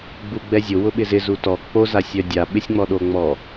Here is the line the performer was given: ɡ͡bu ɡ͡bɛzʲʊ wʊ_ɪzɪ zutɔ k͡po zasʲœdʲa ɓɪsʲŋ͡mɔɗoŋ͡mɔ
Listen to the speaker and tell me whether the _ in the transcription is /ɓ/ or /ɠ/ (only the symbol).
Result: ɓ